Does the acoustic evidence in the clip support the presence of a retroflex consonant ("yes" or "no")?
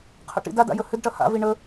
yes